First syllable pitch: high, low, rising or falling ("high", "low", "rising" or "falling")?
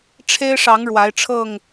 high